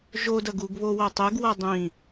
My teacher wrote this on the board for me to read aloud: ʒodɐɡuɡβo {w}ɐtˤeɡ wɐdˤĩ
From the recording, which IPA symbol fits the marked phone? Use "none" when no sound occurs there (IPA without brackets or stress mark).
w